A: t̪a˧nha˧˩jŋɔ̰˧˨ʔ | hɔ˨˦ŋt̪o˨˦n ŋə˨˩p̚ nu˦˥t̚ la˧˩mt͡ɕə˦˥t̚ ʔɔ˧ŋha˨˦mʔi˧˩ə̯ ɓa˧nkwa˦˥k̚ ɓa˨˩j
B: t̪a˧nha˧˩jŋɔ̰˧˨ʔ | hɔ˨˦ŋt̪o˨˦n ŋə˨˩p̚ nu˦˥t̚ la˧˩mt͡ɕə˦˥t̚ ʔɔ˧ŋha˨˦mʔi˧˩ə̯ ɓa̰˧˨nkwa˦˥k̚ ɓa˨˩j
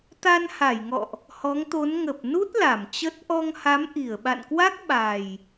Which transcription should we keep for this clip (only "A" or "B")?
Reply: B